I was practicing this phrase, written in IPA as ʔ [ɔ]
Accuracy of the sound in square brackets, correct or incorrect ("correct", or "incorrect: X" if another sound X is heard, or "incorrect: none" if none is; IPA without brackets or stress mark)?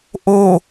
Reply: incorrect: o